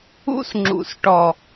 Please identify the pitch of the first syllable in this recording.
high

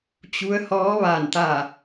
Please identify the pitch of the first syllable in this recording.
rising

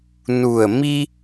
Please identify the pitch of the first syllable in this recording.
low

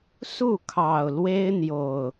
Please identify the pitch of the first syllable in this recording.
falling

